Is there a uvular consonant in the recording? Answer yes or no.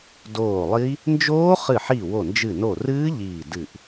yes